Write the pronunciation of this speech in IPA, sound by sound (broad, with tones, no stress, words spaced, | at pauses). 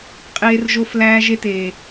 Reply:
qʼeː˨rʒo˨f læː˦ʒe˦teː˨